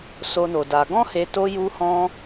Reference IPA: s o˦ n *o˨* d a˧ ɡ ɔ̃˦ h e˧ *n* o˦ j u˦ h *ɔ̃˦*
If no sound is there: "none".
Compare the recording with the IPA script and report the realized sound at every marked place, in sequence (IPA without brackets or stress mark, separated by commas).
o˧, t, ɔ̃˦